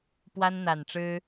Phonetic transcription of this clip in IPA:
pwa˦nn̪a˨˩nʈ͡ʂɻ̩˦

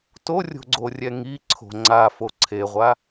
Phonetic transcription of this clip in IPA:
torʲo̤ɡ͡ǀorʲɛ ŋiǀʰo̤ ŋ͡ǀa foǀʰeʁʷa

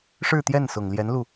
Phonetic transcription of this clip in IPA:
ʂɻ̩˥˧t̪jɛ˥˩nsʊ˨˩ŋljɛ˧˥n lu˥˩

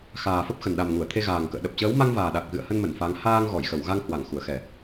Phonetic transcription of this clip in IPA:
xaː˨˩ fə˦˥p̚xə˨˩nɗa˨˩m ŋu˧˩ə̯t̪ʰe˧ ɣaː˨˩ŋkə̰ː˧˨ɗə˨˩p̚ t͡ɕəː˨˦wma˧ŋvaː˨˩ ɗa˨˩k̚ɣɨ̰˧˨ə̯hə˧n mə˧˩nfa˨˦ŋ haː˧ŋɣɔ˧˩j xə˧˩wɣa˧ŋhwa˧˩ŋ xu˧˩ə̯xɛ˧˩˨

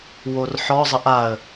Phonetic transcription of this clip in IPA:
worħɔ zˤəʔaə̯

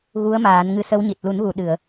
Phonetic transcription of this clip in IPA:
ɣu˧˥ə̯maː˨˩˦nŋɨ˧˥ sə˧˥wɲi˨˩t̚ lu˨˩˦nɣu˨˩˨ ɗɨ˨˩˨ə̯

